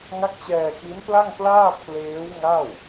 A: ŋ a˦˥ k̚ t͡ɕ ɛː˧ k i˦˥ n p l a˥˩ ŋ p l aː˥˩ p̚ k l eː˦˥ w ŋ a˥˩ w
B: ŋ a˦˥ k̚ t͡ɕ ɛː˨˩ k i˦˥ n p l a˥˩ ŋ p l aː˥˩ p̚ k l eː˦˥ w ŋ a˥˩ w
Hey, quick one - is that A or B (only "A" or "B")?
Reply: A